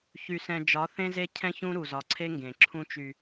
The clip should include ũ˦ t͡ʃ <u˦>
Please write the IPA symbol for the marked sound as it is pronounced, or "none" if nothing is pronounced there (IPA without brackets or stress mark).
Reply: y˦